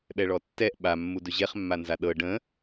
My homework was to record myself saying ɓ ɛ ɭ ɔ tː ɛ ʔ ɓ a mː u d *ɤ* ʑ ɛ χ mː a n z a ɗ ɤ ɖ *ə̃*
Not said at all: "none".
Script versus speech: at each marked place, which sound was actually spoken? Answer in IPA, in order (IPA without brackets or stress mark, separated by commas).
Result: ɵ, ə̃